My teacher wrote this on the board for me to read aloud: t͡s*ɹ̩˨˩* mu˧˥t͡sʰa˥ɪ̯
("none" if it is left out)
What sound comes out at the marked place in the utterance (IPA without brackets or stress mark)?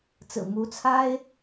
ɹ̩˨˩